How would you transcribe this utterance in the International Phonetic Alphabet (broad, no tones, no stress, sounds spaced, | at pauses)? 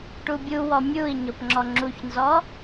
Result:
ʈ u bʲ u w ɔ mʲ u i̯ ɲ o p ŋ͡ǁ ɔ ŋ͡ǁ u ç n z ɔ